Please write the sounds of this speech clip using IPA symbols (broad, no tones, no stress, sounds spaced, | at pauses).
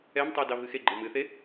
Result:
ɛ m tˤ e d ɑ v ɨ x e ɡ͡ǃ ɤ m ɨ θ e